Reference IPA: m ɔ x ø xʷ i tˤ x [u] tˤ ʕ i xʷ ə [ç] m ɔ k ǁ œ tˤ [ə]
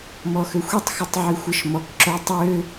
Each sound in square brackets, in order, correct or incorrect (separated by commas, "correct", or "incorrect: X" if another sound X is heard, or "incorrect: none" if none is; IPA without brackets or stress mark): correct, incorrect: ʃ, incorrect: ø